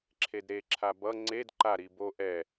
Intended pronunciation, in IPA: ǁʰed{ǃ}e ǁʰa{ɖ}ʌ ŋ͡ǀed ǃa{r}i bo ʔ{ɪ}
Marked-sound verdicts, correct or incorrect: incorrect: ɾ, incorrect: b, incorrect: ɾ, incorrect: ɛ

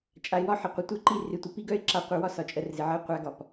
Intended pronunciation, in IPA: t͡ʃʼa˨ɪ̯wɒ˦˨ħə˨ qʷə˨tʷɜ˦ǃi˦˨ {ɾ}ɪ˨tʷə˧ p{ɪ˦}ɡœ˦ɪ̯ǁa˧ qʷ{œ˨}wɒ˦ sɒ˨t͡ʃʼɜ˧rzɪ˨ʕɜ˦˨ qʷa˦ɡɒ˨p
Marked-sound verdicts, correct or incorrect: incorrect: r, incorrect: i˦, correct

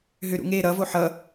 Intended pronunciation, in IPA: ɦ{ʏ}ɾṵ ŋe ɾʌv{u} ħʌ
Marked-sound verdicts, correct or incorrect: correct, incorrect: o

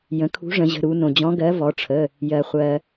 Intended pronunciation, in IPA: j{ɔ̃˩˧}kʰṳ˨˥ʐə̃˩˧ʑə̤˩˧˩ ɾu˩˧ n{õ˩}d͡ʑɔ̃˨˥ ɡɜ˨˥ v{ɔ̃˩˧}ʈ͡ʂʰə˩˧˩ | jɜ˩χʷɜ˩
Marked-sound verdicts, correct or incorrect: incorrect: ə̃˩˧, correct, incorrect: ɔ˩˧

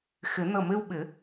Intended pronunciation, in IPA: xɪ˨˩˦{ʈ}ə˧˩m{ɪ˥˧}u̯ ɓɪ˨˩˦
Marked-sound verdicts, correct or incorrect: incorrect: n, correct

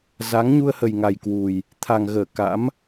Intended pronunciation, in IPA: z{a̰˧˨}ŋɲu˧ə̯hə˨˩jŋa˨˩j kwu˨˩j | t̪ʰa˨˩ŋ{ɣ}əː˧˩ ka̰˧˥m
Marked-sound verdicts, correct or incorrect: incorrect: a˨˦, correct

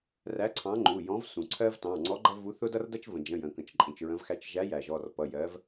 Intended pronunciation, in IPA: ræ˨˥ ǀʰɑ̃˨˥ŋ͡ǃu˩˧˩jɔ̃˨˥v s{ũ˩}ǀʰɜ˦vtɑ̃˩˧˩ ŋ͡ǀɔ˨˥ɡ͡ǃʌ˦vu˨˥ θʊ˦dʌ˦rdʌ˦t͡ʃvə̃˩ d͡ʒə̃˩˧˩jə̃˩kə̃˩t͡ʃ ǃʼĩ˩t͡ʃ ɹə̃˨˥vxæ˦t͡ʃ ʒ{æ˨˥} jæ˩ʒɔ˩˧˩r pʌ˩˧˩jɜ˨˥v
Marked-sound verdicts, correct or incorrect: correct, correct

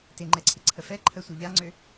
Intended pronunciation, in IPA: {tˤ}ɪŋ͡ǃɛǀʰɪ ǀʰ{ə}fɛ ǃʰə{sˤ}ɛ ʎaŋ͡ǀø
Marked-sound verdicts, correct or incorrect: incorrect: t, correct, incorrect: sʷ

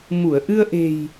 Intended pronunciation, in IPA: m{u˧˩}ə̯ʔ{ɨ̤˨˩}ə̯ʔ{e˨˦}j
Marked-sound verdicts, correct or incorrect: correct, incorrect: ɨ˧, incorrect: e̤˨˩

